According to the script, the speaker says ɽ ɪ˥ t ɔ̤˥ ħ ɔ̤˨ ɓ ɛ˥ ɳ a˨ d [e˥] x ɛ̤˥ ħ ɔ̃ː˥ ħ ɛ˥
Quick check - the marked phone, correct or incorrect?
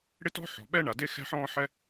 correct